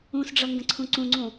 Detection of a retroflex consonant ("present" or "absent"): present